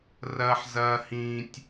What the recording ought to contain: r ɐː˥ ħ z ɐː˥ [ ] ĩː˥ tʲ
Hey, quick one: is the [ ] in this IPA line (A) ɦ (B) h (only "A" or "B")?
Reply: B